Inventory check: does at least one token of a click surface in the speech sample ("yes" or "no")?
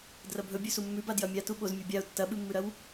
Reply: no